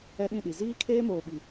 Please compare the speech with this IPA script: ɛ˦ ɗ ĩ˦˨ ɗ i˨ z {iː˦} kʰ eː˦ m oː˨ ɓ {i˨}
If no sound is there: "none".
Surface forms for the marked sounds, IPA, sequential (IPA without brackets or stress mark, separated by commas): iː˦, i˨